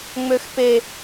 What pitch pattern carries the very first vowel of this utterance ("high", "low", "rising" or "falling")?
high